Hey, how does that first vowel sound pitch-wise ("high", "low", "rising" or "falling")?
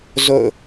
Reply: falling